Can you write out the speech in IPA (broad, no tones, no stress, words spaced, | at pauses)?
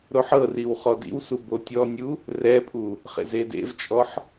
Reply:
ɾoħɤriw χɔdḭwsu botʲɔnʲu | rɛpʼu | χḛzedḛvt͡ʃʼɔħ